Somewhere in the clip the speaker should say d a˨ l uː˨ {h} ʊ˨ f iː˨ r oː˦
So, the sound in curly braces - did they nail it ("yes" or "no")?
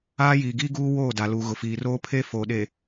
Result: no